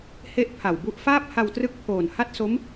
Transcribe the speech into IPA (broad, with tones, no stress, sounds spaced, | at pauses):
h e˥˩ ʔ pʰ a˨˩ w b u˦˥ ʔ f aː˥˩ p̚ h a˧ w t r ɯ˦˥ k̚ pʰ oː˨˩ n h a˥˩ t̚ s o˦˥ m